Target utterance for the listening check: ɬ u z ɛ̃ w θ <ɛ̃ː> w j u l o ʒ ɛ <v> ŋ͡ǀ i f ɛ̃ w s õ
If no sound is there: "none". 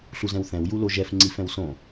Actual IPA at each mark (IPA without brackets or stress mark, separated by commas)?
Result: ɛ̃, f